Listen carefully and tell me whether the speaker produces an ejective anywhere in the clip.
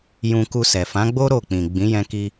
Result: no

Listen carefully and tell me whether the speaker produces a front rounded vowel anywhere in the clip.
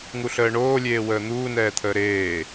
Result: no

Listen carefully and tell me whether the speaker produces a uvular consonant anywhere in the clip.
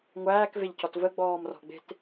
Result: no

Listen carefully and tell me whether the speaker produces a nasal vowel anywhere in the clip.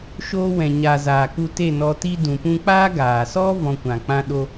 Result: yes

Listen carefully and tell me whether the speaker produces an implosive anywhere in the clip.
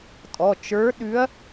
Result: yes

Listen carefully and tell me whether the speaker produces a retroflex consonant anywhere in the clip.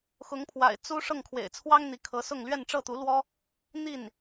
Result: yes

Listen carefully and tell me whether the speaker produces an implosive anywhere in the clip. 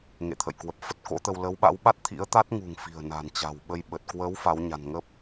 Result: yes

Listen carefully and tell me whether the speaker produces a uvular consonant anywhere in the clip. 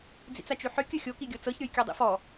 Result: no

